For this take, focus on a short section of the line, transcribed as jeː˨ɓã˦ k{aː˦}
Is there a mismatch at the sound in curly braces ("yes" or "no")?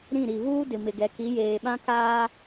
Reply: no